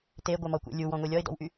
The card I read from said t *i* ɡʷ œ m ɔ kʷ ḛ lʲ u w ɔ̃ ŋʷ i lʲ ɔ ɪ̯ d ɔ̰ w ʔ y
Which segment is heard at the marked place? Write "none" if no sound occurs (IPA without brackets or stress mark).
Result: e